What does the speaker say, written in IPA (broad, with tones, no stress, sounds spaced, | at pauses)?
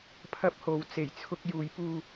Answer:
pʰ ɐ˧ p̚ h o˨˧ w t͡s e˨˩ j t͡sʰ ʊ˧ k̚ j uː˨˧ j p uː˧